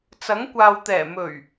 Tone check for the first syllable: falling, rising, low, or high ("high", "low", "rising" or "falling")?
rising